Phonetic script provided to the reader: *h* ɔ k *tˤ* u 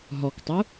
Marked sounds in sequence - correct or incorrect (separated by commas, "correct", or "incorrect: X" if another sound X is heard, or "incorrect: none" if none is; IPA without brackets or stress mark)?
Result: incorrect: ɦ, correct